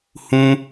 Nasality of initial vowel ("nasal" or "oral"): nasal